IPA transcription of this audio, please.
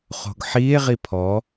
χ o̤ ɡ ħ iː e̯ ʁ i pʰ ɔ

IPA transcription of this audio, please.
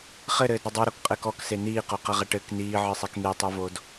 χ ɘ ɾ ɘː d ɾ ɐ dˤ u ɾ o k qʼ ɘː k ɔ k s e n iː q o q ɐ ʁ ɐ ʈ ɘ k n iː ʕ ɨ sˤ e k n̪ e tˤ u v o d

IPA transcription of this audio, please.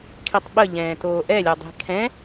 kʰ i tˤ ɓ ə ʎ ɛ̃ː t oː ʔ ɛ lʲ o dˤ i̤ kʰ ɛ̃

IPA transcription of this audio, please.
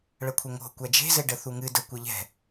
ɭ ə kʷʰ ɘ ŋ o̤ kʷ æ d͡ʒ e̤ z ɘ ɖ ə θ u ŋ ɨ d ə kʷ ɘ ʎ ɛ̤

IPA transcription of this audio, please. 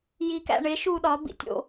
j i k æ̰ ɳ e ʃ u ɗ ɒ b ḭ tʲ o̰

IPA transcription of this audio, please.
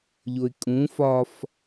ʎ o ɪ̯ kʼ ũ f ɒ f

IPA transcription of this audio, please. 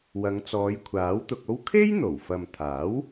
w ɐ˨˧ ŋ t͡s ɔː˨˧ j kʷʰ aː˨˥ w t̪ ʊ˧ k̚ o˥ w kʰ e˥ j n̪ o˨˩ w f ɐ˨ m t̪ʰ aː˨˥ w

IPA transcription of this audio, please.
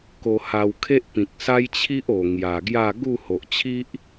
k o˧ h a˧ w kʰ e˦ ʔ p ĩ˨ k̚ s a˦ j t͡ɕʰ i˦ ʔ o˨˩ ŋ j a˨˩ ɡ j a˥˧ ɡ u˥˧ h o˨ ʔ t͡ɕʰ i˦ ʔ

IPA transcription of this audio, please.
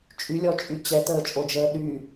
t͡ʃʼ y lʲ ɔ t͡ʃʼ y t͡ɕ ɛ t əː t͡ʃʼ o d͡ʒ əː ɗ y

